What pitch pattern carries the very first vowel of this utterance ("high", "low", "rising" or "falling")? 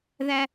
high